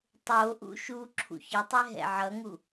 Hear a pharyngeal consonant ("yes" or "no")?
yes